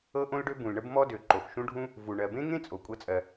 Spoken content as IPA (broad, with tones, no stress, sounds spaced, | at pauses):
ɤ˥ ʔ õ˥ l ɖ ø˥ b ũ˩ l ɳ ə˥ b m ɔ˥ d ø˩ ǃ o˩ x ʃ ũ˥ ɖʱ ũ˥ | v u˩ ɳ ɜ˩ b ẽ˥ ŋ ẽ˥ t͡sʼ o˩ kʷʼ ɤ˥ t͡sʼ ɜ˩